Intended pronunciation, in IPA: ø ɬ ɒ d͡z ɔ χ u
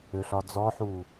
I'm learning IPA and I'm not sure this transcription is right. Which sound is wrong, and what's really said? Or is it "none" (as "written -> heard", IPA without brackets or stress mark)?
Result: χ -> ħ